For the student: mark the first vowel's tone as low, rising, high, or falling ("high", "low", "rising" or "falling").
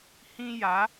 high